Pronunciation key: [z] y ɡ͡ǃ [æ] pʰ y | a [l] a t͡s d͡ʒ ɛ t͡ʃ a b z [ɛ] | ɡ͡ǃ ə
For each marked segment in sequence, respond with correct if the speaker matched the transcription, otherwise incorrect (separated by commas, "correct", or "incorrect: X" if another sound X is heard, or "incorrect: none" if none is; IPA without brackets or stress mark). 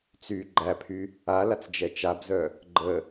incorrect: t͡s, correct, correct, incorrect: œ